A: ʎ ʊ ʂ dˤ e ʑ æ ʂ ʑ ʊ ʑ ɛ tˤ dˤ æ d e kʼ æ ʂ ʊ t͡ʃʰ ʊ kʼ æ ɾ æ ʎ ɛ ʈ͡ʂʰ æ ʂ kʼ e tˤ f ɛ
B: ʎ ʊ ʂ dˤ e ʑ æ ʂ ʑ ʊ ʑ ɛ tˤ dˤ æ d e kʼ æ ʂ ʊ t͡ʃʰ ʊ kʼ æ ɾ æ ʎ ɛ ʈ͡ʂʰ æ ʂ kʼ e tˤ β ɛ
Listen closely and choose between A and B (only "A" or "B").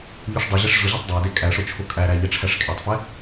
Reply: A